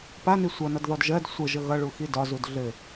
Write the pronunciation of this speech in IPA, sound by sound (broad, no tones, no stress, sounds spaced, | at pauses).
p a n i sʷ ʌ n ʌ d ð ɔ d ʒ ɜ d sʷ ə ʒ ə ɣ ʌ ɭ u x i d ɒ z u d ɮ ɘ